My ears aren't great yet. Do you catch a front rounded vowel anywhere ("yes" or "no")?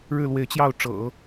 no